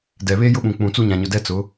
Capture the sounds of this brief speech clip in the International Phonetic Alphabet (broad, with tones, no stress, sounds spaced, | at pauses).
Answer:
d ɛ˨ β e˦ j ʊ˦ ɓ ũ˨ k͡p ũ˨ t͡s u˦ ɲ ã˨ ɲ ʊ˨ d ɛ˦ t͡s ʊ˨˦